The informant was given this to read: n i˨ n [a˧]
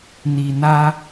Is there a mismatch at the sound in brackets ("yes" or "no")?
no